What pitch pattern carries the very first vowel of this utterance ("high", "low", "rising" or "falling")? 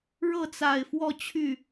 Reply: falling